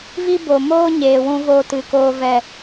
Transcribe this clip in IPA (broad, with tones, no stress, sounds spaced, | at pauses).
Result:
v i˦ b o˨ m oː˦ ɲ eː˨ w ũ˧ v o˧ t ɨ˨ k oː˦ v ɛ˦˨